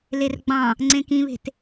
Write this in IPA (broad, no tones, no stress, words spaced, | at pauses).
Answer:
lerɡ͡bɑ̃ | ŋ͡ǀẽkĩβe̤t